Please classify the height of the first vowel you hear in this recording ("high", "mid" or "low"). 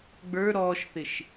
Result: mid